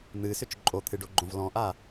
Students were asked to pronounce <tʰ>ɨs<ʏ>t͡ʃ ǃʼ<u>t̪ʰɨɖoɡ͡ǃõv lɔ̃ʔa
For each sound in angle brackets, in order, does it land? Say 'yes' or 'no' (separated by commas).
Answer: no, yes, no